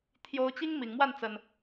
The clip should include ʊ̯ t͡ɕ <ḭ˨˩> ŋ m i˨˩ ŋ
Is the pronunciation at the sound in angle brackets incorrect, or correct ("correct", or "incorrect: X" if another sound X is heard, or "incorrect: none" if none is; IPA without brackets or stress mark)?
incorrect: i˦